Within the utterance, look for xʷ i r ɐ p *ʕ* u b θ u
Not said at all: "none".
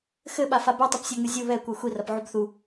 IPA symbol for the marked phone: ʕ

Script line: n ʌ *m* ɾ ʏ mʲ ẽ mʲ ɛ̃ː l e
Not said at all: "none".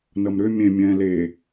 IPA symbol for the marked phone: m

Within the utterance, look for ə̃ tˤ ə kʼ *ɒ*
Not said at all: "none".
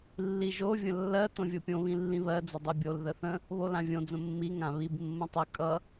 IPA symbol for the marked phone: ʌ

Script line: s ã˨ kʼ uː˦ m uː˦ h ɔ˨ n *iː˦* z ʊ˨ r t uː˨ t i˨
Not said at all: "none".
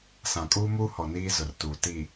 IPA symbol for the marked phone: iː˦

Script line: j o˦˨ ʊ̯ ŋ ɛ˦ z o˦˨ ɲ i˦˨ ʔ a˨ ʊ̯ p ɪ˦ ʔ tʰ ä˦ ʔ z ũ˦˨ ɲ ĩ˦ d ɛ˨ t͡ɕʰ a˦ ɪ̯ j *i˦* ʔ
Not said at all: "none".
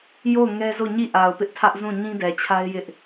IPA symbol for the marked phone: ɪ˦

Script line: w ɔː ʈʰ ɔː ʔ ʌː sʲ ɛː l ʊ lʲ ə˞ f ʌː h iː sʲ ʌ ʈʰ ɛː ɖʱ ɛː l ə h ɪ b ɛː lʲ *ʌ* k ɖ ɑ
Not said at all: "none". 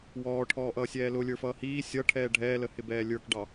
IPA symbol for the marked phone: ə˞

